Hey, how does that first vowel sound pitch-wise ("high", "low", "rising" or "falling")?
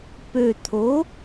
low